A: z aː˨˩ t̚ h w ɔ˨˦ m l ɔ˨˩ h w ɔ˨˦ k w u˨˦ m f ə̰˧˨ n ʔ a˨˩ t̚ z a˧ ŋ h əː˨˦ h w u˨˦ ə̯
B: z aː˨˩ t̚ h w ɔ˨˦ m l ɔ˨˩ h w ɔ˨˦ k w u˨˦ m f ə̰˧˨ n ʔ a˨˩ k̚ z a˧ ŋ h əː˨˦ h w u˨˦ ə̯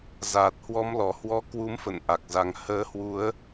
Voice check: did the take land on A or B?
B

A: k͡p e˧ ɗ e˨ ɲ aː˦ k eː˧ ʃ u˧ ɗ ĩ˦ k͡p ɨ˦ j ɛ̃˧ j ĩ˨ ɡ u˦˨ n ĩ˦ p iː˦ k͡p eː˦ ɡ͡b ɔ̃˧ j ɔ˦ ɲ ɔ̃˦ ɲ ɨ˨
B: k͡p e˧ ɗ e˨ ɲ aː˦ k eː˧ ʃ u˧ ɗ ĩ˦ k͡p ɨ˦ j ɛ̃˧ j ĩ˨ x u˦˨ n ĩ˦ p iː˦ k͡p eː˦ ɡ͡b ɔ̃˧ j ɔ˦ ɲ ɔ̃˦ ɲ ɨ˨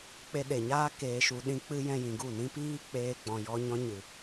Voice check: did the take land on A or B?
A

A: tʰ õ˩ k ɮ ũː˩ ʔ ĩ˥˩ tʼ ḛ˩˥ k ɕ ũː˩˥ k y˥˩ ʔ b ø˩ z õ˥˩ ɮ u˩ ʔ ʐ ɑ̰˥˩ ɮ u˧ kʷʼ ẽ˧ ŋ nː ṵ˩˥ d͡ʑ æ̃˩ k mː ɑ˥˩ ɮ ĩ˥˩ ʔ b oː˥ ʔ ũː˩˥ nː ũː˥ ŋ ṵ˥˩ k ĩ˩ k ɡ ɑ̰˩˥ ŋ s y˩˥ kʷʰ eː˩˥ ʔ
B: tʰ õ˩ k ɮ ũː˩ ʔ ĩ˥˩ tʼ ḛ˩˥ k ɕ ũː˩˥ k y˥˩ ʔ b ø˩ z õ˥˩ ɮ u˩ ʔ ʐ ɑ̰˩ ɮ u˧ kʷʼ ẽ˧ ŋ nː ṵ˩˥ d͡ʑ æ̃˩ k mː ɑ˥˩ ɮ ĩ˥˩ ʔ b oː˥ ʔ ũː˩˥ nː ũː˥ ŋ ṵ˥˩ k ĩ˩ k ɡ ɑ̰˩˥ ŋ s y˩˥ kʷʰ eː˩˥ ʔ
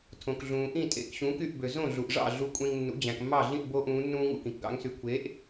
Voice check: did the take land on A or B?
A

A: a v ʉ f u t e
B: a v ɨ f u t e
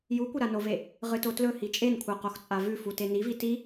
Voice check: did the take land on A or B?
A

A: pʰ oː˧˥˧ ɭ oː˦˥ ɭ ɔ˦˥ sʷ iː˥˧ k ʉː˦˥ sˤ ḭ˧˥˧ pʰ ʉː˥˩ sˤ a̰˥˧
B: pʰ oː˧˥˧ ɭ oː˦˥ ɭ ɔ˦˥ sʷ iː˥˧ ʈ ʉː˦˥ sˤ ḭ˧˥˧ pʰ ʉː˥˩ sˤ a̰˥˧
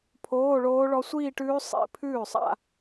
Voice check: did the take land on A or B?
B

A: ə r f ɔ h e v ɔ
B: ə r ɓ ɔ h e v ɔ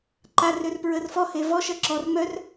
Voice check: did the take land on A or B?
A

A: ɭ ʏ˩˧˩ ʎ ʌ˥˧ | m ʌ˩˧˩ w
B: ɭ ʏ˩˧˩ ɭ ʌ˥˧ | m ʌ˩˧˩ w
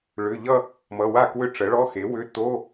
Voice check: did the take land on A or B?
A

